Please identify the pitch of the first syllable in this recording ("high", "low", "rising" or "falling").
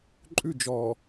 falling